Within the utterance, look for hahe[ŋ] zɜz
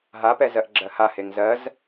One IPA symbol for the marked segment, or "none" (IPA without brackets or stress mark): ŋ